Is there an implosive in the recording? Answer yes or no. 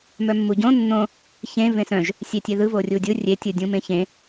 no